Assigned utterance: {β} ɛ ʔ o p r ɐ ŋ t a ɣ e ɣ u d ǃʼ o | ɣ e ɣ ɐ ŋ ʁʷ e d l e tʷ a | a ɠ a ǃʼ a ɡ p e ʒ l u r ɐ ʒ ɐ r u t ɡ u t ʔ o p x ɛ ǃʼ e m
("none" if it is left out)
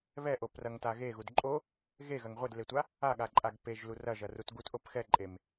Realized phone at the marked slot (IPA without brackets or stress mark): β